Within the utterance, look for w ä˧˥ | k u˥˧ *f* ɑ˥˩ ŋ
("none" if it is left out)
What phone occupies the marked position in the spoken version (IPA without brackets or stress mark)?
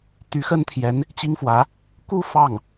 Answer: f